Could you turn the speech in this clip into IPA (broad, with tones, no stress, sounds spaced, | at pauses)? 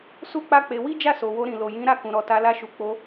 s u˦ k͡p a˦ k͡p e˧ w i˦ d͡ʒ a˦˨ s o˨ w o˧ ɾ ĩ˨ l o˨ j ĩ˨˦ ɾ a˦˨ k ũ˨ ɾ ɔ˨ t a˧ l a˦ ʃ u˧ k͡p o˧